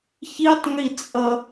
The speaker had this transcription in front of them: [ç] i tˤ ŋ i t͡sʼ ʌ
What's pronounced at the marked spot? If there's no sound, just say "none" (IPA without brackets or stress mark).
ç